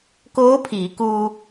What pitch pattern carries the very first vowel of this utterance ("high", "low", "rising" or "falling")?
rising